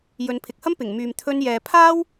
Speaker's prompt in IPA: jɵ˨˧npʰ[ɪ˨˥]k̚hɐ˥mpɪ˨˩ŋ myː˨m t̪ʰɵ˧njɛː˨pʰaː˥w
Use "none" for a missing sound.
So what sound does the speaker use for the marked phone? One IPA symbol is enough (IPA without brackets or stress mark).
ɪ˨